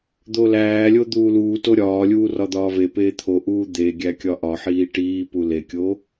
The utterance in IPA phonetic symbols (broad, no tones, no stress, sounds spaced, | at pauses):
d̪ o l æː lʲ o d̪ uː l uː t o ɾʲ ɒː lʲ uː r ɒ d̪ ɒː v e p eː t̪ʰ o ʔ uː d̪ e ɡʲ æ kʲ ɒ ʔ ɒ ħ iː ʈ iː p u l e kʲ o